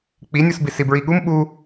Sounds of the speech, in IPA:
k͡p i nʲ u s b i s i b ɹ i ɠ u m ɓ u

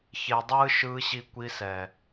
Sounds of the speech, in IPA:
ç e˨ dˤ ɯː˦ ʃ ɯː˦ ɕ i˦ kʷ i˦ s ɛ˨

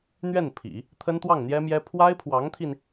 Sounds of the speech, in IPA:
n̪ ɥ ɛ˥˩ n pʰ ḭ˨˩˦ | t̪ʰ ə˥ n t̪ w ɑ˥˩ ŋ n̪ j ɛ˥ m j ɛ˥ pʰ w a˥ ɪ̯ pʰ w ɑ˧˥ ŋ t̪ʰ i˧ n

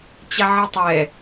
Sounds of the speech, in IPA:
t͡ɕ a ʕ ɤ tˤ ɛ

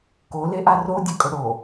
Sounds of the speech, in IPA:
k o l e ʔ a r o dʲ ɐ kʼ ɵ ɽ o

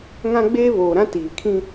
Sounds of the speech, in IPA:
ŋ ã˦ ɡ͡b eː˦ β oː˨ ɾ ã˦ t iː˨ kʰ ĩ˦

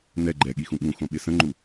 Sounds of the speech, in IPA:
n ɛ ɡ͡ǃ ɛ ɠ i x ũ ɠ ũ x õ ɓ ɪ s ə̃ ŋ͡ǃ u

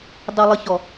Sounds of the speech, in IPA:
dˤ ə˨ lˠ ə˨ ç ɔ˨

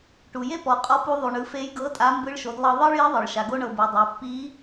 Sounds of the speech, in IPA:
ʈ u˩ j e˥ p ɔ˩˧ qʼ ɔ˧˥ p u˧ ðˤ u˩ ɳ ɯ˩˧ f e˧˥ j ɡ ɤ˧˥ tʼ a˧˥ m b ɯ˧˥ ɭ ʃ o˩˧ d lˠ ɤ˧ ðˤ ɤ˥ ɭ j i˧˥ ðˤ ɤ˩ ɭ ʃ a˩ ɡ o˥ ɳ ɤ˧ b ɯ˩˧ dˤ o˩˧ pː i˧˥

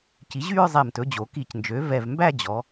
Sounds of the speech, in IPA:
c i˩˥ ʑ y˥˧ ɹ zˤ ɛ˧˩ m t ɵ˩˥ d͡ʑ o˩˧ k i˧˩˧ c n d͡ʒ ø˩˥ v ɛ˧˩ v m b æ˥˧ d͡ʑ ɔ˩˧

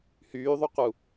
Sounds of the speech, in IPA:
h yː ðˤ u q u

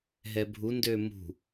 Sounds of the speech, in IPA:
ɦ ɛ bʱ u n d ø m ṳ

